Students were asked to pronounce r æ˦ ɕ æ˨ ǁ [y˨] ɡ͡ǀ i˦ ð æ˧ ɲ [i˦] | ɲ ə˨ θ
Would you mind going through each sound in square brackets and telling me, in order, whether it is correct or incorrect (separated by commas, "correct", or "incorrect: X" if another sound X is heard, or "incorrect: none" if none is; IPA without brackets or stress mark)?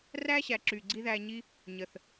correct, correct